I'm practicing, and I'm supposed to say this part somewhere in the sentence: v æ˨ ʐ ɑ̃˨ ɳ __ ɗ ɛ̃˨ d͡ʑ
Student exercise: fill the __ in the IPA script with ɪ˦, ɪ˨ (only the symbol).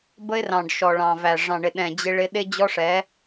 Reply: ɪ˨